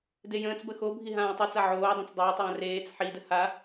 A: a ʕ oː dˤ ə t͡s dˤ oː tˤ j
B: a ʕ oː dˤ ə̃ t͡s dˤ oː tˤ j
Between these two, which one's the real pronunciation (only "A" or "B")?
B